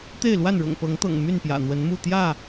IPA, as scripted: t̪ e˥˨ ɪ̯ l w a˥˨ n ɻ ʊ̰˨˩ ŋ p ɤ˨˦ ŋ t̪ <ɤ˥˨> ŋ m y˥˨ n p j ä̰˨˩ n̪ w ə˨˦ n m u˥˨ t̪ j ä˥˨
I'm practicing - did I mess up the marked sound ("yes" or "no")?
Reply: yes